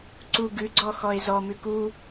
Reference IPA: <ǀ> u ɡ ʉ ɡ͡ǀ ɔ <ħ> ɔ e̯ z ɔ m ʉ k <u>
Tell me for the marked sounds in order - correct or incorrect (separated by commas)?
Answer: correct, incorrect, correct